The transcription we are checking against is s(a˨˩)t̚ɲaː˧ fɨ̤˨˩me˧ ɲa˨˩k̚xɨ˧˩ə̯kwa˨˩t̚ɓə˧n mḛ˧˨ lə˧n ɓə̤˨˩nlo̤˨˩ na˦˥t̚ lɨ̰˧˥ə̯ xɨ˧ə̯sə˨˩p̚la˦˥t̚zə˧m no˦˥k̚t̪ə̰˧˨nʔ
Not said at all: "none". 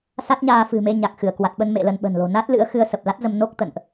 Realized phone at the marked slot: a˦˥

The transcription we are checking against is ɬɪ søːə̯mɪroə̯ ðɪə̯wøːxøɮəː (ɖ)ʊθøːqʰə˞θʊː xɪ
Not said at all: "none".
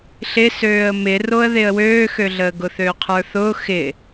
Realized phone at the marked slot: ɡ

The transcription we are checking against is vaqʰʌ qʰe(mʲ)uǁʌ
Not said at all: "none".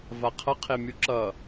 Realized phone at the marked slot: mʲ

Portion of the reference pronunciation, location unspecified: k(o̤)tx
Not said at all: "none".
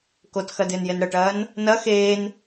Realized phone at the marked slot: o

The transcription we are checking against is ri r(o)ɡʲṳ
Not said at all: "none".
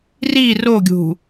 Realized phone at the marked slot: o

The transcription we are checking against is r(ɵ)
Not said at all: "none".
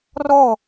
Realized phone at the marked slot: ɔ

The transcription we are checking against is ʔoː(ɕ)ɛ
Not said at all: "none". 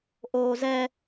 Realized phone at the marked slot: z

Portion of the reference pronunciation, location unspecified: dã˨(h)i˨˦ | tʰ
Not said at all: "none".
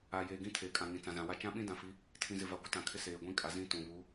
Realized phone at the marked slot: f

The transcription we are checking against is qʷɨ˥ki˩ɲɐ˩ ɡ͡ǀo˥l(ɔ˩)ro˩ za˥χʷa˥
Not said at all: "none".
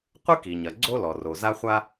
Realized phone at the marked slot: ɔ˩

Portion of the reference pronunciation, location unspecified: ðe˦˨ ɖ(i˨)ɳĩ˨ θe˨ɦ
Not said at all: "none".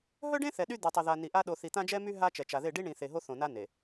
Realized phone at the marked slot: i˦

